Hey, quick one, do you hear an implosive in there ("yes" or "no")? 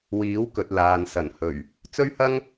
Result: no